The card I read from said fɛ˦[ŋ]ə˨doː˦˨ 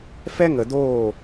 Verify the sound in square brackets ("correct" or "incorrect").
correct